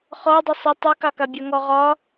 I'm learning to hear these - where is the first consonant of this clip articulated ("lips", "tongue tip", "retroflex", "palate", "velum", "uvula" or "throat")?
uvula